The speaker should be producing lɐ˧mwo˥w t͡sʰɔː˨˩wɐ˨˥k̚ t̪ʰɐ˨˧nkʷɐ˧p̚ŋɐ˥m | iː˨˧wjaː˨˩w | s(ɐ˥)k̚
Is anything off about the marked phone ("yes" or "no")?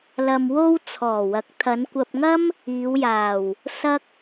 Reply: no